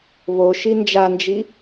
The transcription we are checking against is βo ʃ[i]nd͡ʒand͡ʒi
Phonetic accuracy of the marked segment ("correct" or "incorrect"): correct